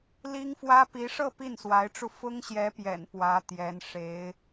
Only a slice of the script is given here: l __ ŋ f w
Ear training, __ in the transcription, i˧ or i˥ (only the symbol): i˥